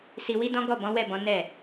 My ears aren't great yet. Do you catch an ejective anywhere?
no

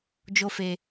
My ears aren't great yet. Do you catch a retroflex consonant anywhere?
no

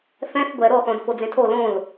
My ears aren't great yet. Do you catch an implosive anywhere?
no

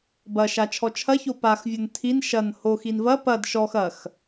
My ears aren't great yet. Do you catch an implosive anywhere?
no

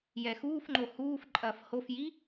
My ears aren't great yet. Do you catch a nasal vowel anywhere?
no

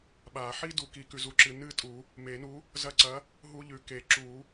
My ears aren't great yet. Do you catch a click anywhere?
yes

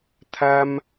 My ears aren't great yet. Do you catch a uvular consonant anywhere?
no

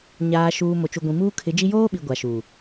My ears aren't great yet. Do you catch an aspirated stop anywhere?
yes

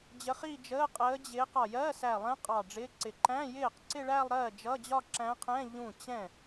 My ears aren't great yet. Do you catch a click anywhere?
yes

